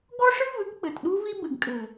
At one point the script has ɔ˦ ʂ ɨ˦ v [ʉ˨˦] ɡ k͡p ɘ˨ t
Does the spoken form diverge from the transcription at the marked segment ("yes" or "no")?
yes